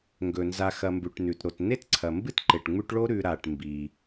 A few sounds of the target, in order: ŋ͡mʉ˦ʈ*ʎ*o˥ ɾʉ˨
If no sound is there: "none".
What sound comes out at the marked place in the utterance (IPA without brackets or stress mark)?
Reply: ɭ